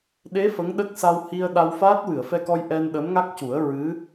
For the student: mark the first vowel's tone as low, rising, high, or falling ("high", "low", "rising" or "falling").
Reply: rising